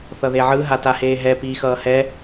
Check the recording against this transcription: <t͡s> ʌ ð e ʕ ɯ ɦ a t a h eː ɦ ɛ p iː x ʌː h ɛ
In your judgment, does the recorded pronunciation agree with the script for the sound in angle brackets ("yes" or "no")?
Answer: no